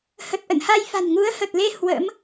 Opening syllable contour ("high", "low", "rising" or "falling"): low